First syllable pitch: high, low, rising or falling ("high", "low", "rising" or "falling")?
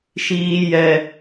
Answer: high